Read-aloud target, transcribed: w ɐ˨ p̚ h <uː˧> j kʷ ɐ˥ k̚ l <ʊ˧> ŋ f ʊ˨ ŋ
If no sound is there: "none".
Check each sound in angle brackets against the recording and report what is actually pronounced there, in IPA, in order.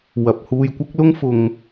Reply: uː˧, ʊ˥

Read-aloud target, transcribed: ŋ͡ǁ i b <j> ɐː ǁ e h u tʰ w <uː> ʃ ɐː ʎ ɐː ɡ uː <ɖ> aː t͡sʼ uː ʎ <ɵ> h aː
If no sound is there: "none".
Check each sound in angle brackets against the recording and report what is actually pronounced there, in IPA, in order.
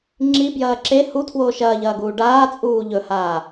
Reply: j, oː, ɖ, ɵ

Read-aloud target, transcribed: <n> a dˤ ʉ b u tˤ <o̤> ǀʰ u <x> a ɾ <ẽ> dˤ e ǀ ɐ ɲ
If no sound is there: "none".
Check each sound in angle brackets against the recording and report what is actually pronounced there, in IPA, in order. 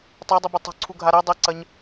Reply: tˤ, o̤, ɡʱ, e

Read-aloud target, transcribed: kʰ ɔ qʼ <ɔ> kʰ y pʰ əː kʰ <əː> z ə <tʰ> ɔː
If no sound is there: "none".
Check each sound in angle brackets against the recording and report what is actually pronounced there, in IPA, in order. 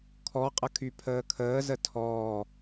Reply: ə, əː, tʰ

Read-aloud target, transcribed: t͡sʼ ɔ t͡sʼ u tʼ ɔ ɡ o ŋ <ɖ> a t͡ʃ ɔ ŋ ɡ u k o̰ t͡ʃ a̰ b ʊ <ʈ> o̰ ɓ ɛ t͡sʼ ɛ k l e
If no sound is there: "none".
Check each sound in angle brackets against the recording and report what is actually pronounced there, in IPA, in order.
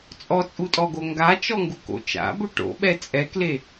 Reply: ɡ, ʈ

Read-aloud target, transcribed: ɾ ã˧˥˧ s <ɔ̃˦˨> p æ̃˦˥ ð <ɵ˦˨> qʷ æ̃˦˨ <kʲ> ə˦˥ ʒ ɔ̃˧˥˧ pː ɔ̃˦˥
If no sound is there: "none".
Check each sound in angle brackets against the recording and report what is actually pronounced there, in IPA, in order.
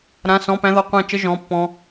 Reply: ɔ̃˧˥˧, ɔ˦˨, t͡ʃ

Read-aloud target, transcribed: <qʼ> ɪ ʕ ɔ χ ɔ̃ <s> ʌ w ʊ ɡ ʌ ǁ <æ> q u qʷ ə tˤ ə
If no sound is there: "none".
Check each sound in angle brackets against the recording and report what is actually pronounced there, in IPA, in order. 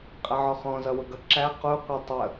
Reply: qʼ, z, æ

